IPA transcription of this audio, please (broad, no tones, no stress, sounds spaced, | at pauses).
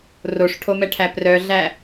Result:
r o ʂ ʈʰ o m ɛ ʈʰ æ p r œ ɮ æ